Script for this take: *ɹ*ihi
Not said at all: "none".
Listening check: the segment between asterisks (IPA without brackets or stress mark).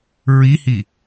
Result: ɹ